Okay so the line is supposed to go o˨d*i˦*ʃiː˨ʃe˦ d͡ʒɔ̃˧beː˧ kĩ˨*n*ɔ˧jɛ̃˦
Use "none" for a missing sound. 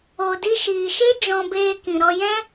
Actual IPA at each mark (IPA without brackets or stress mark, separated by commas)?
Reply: i˧, ɾ